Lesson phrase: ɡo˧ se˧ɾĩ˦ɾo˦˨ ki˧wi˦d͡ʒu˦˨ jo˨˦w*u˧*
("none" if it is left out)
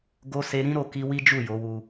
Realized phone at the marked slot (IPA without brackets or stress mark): u˧